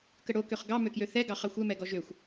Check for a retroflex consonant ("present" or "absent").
present